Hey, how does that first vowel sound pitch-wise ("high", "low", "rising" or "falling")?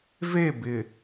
falling